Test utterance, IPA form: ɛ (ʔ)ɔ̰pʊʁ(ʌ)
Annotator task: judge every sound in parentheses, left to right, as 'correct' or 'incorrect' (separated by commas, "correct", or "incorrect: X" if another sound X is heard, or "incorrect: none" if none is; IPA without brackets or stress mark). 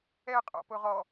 incorrect: qʼ, incorrect: ɔ